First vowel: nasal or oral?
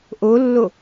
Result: oral